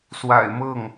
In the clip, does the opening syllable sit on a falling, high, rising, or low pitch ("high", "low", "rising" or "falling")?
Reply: low